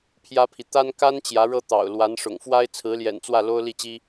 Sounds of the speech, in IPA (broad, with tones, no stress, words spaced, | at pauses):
pʰjä˥pʰi˨ t̪a˥n ka˥n t͡ɕjä˧˥ɻɤ˥t̪ɑ̰˨˩ʊ̯ lwa˧˥n ʂʊ̰˨˩ŋfwa˥ɪ̯ t͡sʰɹ̩˧˥ljɛ̰˨˩nt͡swä˥˩ lo˥ʊ̯li˥˩t͡ɕi˥